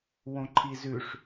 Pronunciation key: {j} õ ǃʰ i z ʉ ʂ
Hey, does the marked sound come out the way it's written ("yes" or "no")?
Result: no